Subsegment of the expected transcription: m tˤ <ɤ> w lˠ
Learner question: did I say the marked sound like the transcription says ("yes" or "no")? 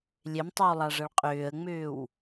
yes